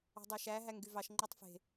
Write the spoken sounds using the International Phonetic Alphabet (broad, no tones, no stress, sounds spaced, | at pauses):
ɑ̤ dˤ æ ʃ æ ɦ æ ŋ ɡ y v ɑ ʃ ŋ͡ǃ o tˤ f e̤